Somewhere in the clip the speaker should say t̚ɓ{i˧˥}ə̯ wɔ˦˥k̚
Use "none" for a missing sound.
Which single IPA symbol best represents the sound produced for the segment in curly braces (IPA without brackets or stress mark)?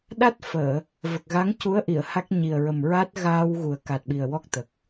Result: i˨˩